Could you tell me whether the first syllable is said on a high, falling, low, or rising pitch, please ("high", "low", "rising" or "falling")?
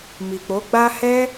low